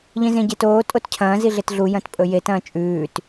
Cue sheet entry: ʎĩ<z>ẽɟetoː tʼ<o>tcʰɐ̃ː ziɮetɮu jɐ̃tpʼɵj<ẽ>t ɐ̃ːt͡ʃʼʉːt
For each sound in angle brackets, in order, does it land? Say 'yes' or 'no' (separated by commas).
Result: yes, yes, no